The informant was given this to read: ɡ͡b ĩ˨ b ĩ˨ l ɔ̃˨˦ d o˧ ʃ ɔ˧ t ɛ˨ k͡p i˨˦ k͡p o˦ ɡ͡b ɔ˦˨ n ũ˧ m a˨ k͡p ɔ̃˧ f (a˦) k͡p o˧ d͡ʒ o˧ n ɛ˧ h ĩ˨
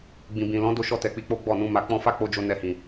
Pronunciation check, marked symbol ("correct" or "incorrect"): correct